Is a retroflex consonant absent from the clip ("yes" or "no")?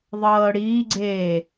no